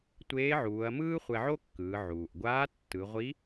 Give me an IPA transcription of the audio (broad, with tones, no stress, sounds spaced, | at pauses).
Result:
tʷ eː˧˥ ʕ uː˩˧ ɐ̯ m ɯː˥ χʷ ɛ˧ ʕ o˥ kː ɯː˩˧ ʕ uː˩ ʔ ɡʷ aː˧˥ tː ɯ˩˧ ʁʷ i˧˥